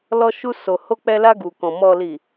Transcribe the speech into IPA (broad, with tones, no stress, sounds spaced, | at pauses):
l ɔ˧ ʃ u˧ s o˨ h o˧ k͡p ɛ˧ l a˧ ɡ u˨ k ɔ̃˨ m ɔ˨ l i˨